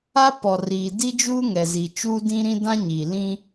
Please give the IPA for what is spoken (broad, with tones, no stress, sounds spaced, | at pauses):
a˦ p ɔ˨ r iː˨ d i˦ d͡ʒ uː˦ ŋ ɛ˨ z i˨ t͡ʃ uː˦ d ĩ˦ ɾ ĩ˦ d ã˦ ɲ iː˨ l ĩ˦